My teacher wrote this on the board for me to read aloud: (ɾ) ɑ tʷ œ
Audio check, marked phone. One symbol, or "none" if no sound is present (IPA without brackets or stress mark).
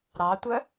ɾ